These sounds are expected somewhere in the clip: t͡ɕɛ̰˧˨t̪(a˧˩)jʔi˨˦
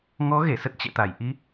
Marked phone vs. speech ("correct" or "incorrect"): correct